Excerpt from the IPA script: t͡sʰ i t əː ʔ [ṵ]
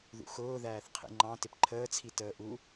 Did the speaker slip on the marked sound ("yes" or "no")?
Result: yes